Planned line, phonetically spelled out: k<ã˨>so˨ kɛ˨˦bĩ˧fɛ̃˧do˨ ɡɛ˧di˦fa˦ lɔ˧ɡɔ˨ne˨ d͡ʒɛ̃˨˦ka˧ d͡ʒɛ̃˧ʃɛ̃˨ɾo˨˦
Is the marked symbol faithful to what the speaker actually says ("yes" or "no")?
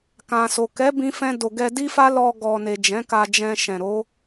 yes